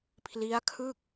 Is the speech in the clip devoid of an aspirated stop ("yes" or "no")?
no